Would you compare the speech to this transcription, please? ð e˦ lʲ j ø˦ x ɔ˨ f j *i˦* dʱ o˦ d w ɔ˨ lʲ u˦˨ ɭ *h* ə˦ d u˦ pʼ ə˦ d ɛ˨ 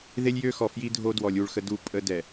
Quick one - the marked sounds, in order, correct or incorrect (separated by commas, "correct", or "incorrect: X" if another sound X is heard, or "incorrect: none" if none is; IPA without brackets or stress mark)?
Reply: correct, incorrect: x